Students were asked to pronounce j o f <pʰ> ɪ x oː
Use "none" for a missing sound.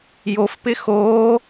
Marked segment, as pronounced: p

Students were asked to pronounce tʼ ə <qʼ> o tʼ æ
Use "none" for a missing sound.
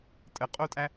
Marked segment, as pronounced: qʼ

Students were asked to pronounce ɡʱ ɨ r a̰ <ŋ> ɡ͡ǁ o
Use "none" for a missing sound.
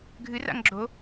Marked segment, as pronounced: ŋ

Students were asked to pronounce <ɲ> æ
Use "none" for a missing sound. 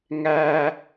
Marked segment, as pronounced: ŋ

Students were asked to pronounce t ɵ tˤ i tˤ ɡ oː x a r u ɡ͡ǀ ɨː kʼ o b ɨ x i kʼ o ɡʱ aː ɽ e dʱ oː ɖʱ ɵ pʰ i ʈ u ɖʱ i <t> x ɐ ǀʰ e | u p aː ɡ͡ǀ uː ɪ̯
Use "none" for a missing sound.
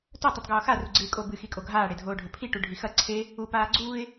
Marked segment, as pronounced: none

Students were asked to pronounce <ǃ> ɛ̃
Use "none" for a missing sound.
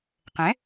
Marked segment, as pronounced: q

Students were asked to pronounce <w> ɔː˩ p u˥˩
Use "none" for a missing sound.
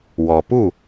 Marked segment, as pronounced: w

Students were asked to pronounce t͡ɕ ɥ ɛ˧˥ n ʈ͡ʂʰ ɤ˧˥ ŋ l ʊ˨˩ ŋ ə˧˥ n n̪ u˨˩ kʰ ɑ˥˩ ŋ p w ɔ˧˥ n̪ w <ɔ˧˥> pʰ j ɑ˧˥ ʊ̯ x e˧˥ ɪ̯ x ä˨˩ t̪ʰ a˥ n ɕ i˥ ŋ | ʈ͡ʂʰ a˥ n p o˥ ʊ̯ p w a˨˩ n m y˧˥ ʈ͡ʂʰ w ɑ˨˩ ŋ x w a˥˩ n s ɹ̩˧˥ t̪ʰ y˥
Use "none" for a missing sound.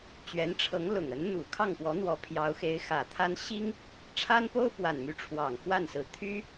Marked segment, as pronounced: ɔ˧˥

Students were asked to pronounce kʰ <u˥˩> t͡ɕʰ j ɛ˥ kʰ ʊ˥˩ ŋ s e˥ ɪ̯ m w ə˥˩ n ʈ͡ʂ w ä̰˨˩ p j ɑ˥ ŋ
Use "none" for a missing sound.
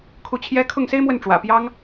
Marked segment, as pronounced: u˥˩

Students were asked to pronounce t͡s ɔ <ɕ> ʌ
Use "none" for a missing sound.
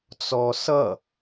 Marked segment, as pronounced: s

